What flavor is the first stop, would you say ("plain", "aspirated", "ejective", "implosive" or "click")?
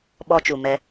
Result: implosive